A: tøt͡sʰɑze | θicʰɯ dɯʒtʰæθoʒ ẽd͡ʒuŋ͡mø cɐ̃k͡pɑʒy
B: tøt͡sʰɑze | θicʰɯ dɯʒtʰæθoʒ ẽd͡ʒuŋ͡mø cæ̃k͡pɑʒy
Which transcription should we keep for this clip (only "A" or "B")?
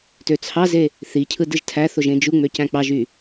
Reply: B